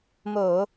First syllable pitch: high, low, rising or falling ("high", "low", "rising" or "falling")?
low